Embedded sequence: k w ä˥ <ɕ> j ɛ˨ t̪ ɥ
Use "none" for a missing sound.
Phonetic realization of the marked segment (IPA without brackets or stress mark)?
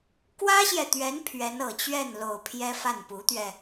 ɕ